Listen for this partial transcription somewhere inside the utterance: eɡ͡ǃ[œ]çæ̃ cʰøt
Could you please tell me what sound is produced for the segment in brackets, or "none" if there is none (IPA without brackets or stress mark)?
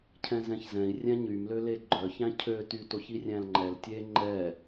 œ